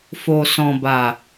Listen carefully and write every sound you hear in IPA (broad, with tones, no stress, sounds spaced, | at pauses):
f o˨ s ɔ̃˨ b a˨